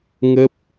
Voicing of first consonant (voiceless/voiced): voiced